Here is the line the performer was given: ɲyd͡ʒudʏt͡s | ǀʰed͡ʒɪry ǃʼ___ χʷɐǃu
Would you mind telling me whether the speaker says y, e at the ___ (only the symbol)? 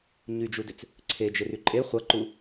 e